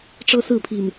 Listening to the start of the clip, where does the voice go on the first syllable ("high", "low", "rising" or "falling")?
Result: high